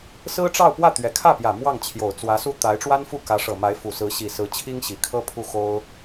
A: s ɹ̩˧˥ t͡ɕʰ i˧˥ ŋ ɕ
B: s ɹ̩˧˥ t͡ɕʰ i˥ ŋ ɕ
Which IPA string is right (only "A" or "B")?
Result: B